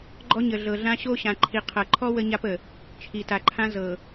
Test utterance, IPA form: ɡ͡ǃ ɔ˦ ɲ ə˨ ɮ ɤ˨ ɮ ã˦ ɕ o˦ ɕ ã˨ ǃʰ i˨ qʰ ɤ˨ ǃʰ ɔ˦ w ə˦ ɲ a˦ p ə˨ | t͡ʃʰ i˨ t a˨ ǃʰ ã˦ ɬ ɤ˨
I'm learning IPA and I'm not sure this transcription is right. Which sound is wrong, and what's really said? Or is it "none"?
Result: ɬ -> z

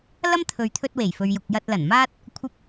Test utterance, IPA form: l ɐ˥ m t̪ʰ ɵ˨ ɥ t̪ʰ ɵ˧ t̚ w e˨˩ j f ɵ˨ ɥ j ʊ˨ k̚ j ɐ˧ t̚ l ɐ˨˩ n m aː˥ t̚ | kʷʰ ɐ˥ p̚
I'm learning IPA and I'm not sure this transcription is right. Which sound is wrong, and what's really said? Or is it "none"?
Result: none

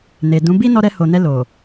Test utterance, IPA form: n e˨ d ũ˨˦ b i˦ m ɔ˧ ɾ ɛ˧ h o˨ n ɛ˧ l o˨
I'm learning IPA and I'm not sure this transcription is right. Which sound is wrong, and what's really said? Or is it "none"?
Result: m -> n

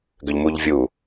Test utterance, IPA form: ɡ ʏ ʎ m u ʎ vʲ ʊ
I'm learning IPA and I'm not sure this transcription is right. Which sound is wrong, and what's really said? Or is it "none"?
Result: ʊ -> u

